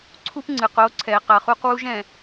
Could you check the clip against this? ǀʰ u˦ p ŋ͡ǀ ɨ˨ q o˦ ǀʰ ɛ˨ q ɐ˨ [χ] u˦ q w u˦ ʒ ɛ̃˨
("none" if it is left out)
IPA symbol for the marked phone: χ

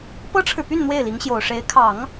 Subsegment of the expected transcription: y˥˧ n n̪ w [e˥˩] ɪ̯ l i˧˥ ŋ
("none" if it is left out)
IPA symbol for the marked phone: e˥˩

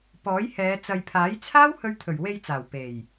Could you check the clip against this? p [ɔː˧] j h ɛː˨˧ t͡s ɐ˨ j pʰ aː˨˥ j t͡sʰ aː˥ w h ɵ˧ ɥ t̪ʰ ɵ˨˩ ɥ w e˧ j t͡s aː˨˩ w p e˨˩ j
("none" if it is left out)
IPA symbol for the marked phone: ɔː˨˥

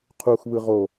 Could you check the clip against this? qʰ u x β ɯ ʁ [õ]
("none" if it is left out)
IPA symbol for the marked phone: o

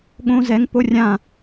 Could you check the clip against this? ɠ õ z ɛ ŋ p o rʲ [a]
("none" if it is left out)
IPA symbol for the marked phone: ã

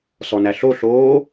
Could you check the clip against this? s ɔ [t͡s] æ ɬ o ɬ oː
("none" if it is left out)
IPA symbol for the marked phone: n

